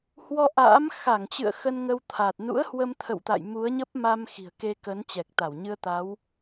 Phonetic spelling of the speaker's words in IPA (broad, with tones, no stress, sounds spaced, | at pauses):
h w ɔ˧ ʔ a̰ː˧˥ m x a˧˩ ŋ t͡ɕ ɨ̰˧˨ ə̯ x ə˧ n ŋ ə˧ w t̪ʰ a˨˩ t̚ n ṵ˧˥ ə̯ h w ə˧ m t̪ʰ ə̰˧˨ w t̪ a̰˧˨ j m u˨˦ ə̯ ɲ ə˦˥ p̚ m a˧ m x i̤˨˩ ə̯ k e˧ k ə˨˦ n t͡ɕ ɛ˨˩ k̚ t̪ a˧˩ w ɲ ɨ˧ ə̯ t̪ a˨˦ w